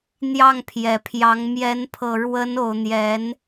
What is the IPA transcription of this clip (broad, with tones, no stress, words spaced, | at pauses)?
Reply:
n̪jɑ˥˩ŋpʰjɛ˨˩pʰjɑ˧˥ŋ mjɛ˧˥n pʰɤ˨˩ɻwə˧˥no˨˩ʊ̯ n̪jɛ˧˥n